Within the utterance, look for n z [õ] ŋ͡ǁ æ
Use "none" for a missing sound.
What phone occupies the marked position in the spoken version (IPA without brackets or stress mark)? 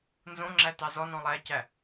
õ